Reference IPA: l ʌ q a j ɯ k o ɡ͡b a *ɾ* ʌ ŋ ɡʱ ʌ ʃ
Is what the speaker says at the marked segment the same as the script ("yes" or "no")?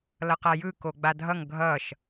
no